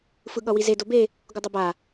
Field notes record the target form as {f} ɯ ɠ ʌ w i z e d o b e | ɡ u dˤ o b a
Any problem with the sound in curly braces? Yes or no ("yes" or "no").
no